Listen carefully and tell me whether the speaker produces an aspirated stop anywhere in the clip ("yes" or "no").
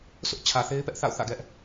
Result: yes